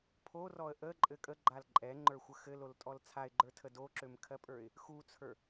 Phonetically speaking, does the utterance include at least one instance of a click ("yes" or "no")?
yes